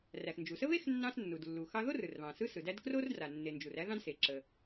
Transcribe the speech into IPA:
r æ˩ x n d͡ʒ u˩ s ə˥ β e˥ x nː ɑ̃˥ s nː u˩ d lː u˩ x ɑ˥ ð o˥ r ɯ˩ r β ɑ̃˩ s ɯ˥ s ɯ˩ d æ˥ d k r o˥ r d r a˩ nː e˩ n d͡ʒ u˩ r æ˥ ð ɑ̃˥ d s e˩ ǁ ə˩

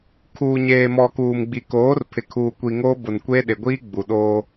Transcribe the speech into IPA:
kʰ uː˨ ɲ eː˨ m ɔ˨ k uː˨ m ɡ͡b i˨ k oː˨˦ r pʰ ɪ˨ kʰ uː˨ kʷ i˨ ŋ oː˦ b ʊ˨ n kʷ eː˦ ɗ ɪ˨ ɡʷ iː˦ ɡ͡b u˨ ɗ oː˦

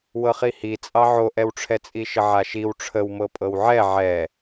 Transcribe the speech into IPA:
w ɤ χ i h i t͡sʼ ɑ ʕ o ʔ ɛ w ʈ͡ʂʰ ɛ t͡sʼ i ʃ ə ʕ a ʃ i w ʈ͡ʂʰ ə w m ɤ pʼ ɤ w ʕ ɛ ʕ ɛ

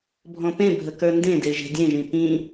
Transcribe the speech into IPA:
bʱ ɔ̃ p ẽ bʱ ə k ə˞ n d ẽ d e ʒ e̤ dʲ ẽ ʒ ĩ p ĩ

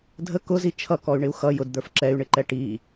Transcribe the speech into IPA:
dʱ ə k ʊ z i t͡ʃʰ ʌ k ɔ y̯ ɳ ɪ u̯ x ʌ j ʊ d d̪ ə˞ f ǁ ɛ y̯ ɳ ɪ ǃ ɛ ʈ i

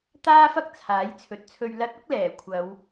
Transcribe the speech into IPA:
t̪ aː˥ f ɐ˥ k̚ t͡sʰ aː˨˥ j t͡sʰ ɵ˨ t̚ t͡sʰ ɵ˧ ɥ l ɐ˧ t̚ ʊ˥ k̚ l ɛː˨˩ kʷʰ ɐ˨˧ w

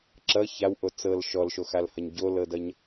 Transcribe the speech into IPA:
ǁ ʌ ç a w ʔ o t͡s ɤ l ʃ ɔ l ʃ o x a l h ʌ ɲ ɟ o l ɤ d ʌ ɲ

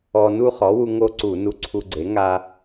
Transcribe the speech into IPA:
ɔ˧ n u˥˧ χ ɔ˩˥ w u˧ ŋ o˥˧ ǀ u˧˩˧ n u˧ ǀʰ u˧ ɡ͡ǀ e˩˥ ŋ a˧

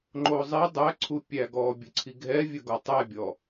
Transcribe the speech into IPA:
ŋ͡ǃ o zˤ i dˤ æ ǀʰ u pʲ æ ɡ ɔ bʲ ɘ ǀʰ i ɡʱ ɛ vʲ ɵ ɡ ɔ tˤ æ bʲ ɔ

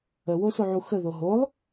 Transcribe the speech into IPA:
ə w o s o ʕ u x ə ð o ɦ o lˠ

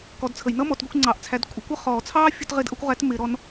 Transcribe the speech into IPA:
k ɔ˨˥ d t͡sʰ ə˨˩˦ j n ʌ˥ m ɔ˨˩˦ t ɡʷ ɪ˨˥ kʷ ŋ͡ǀ ɑ˨˩˦ ʔ t͡sʰ æ˨˥ d kʷʼ ɪ˨˥ kʷ ʌ˥ χ ɔː˨˩˦ t͡sʰ ɑː˥ fʲ ʊ˥ t ʁ ɪ˥ d ʔ ʌ˥ kʷ ʁ æ˨˥ t m ɪ˨˩˦ ɾ ɔ˨˥ n

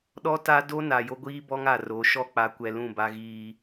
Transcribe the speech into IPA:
ɗ ɔ˦ t a˦ d o˦ n a˨ j o˦ ɡʷ iː˦ b ɔ˦ ŋ a˨ r o˨˦ ʃ ɔ˦ k͡p a˦ kʷ ɛ˦ l ũ˦˨ b a˦ ɣ iː˦

